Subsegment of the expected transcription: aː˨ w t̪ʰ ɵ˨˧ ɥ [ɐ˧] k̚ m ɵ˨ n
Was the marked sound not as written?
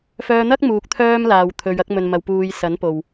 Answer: no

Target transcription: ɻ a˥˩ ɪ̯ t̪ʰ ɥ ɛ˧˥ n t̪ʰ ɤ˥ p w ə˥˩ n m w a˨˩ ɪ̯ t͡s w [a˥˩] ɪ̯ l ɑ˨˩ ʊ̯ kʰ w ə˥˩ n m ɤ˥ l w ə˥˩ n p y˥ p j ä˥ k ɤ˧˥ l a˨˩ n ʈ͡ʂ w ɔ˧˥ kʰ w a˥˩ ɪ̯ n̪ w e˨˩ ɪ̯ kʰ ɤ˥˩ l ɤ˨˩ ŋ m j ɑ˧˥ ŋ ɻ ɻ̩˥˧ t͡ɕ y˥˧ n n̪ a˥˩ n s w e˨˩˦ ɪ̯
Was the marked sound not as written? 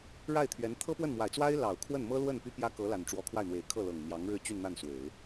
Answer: yes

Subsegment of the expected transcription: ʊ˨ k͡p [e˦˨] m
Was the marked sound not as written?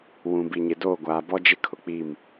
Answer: yes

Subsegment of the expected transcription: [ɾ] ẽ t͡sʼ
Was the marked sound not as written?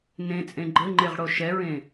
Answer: yes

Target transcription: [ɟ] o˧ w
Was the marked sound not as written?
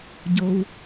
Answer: no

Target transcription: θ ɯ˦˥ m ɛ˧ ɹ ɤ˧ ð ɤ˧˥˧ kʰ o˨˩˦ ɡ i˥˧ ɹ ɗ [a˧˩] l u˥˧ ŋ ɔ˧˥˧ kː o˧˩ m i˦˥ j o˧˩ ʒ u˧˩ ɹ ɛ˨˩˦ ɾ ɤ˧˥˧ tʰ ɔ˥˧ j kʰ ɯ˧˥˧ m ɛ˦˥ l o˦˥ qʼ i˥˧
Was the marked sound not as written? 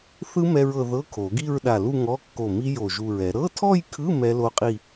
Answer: no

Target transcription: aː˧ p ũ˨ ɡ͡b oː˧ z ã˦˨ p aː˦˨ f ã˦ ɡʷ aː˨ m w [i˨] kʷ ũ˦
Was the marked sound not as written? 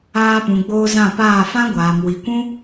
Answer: no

